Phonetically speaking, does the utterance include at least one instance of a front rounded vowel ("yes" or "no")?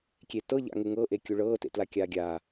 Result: no